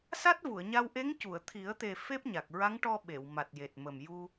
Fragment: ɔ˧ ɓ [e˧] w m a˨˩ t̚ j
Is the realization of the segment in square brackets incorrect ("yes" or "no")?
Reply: yes